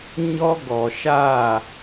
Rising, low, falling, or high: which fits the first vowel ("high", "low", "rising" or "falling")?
high